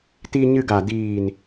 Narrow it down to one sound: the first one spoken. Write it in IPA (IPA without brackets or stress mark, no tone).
t